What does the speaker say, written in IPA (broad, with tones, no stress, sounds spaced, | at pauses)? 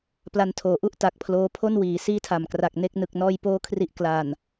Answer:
p l a˧ n tʰ oː˩˦ ʔ u˥˩ ʔ t a˨˩ k̚ pʰ l oː˦˥ pʰ o˥˩ n w iː˩˦ s iː˥˩ tʰ a˨˩ m k r a˨˩ k̚ n e˥˩ k̚ n ɯ˨˩ k̚ n ɔː˧ j p oː˦˥ kʰ r i˨˩ ʔ k l a˨˩ n